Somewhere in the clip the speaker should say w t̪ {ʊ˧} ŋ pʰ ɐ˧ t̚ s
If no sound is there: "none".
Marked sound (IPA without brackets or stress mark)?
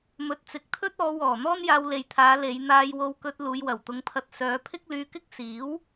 ʊ˧